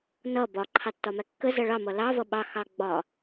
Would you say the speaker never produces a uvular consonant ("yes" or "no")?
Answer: yes